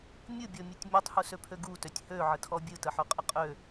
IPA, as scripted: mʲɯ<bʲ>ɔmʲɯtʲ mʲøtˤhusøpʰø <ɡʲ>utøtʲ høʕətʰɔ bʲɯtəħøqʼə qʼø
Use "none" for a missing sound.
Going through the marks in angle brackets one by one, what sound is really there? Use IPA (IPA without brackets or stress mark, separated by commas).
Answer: bʲ, ɡ